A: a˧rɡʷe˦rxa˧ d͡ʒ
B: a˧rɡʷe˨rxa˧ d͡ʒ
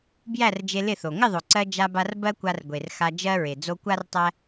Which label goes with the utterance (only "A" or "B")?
B